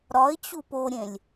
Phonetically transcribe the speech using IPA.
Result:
ɾ ɒ ɪ̯ t͡ɕ u p o ɾʲ ẽ lʲ

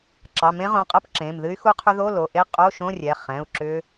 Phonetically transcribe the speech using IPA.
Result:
ǁ ɑ˩˧˩ m ẽ˦˥ ʁ õ˩˧˩ qʼ ɜ˥˧ p ǁ ẽ˩˧˩ m ð ɨ˦˥ y̯ x u˦˥ qʰ ʏ˦˥ ð o˧˥˧ l o˩˧˩ ʔ e˥˧ qʼ o˧˥˧ ʃ õ˧˥˧ rʲ ɛ˩˧˩ χ ɛ̃˩˧˩ u̯ ǁ ʏ˦˥

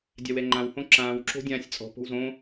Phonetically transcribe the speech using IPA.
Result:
dʲ a w ɛ ŋ͡ǃ ã w h õ ǁ ãː w ǁ o̤ dʲ ãː sʲ t͡sʼ ɔ̤ p o̤ w z õ

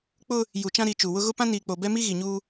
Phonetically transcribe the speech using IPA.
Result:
k͡p ʊ˦ | j u˨ t͡ʃ ã˦ ɾ i˨ t͡ʃ u˨ w ʊ˦ ɣ ʊ˦ p ã˦ n iː˨ k͡p o˨ b ɛ˦ m i˦ ɣ i˨ ɲ uː˦

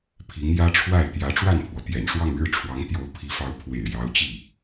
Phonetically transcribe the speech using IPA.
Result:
pʰ i˧˥ ŋ j ä˥ ʈ͡ʂʰ w a˥˩ ɪ̯ t̪ j ä˧˥ ʈ͡ʂ w a˥˩ n pʰ w ɔ˩ t̪ j ɛ̰˨˩ n ʂ w ɑ˥˧ ŋ ɻ ɻ̩˥˩ ʈ͡ʂʰ w ɑ˧˥ ŋ t̪ j o˧˥ ʊ̯ pʰ i˧˥ f ɑ˧˥ ʊ̯ pʰ w ḛ˨˩ ɪ̯ j ɑ˧˥ ʊ̯ t͡ɕ i˥˩

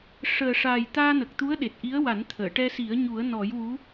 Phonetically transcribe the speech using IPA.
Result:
ʂ əː˨˩ ʂ a˨˩ j t̪ aː˧ n ə˨˩ k̚ t̪ u˧˥ ə̯ ɗ e˨˩ t̚ ʔ i˧˥ ə̯ w a˨˩˦ n t̪ʰ əː˨˩˨ ʈ ɛ˧ s i˨˩˦ ə̯ ɲ u˨˩˦ ə̯ n ɔ˨˩˦ j w u˧˥

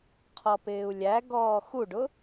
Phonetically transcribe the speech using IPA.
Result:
qʰ ɔ p ɪː u̯ lʲ æ ɡ ɔː x u ɖ ʊ

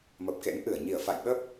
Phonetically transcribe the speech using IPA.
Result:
m ə˨˩ p̚ k ḛ˧˥ n ʔ ɨ˧˩ ə̯ ɲ i˧˩ ə̯ f a̰˧˨ j ɓ ə˦˥ p̚

